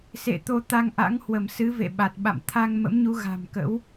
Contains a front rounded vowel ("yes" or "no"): no